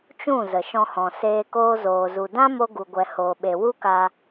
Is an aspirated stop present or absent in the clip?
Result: absent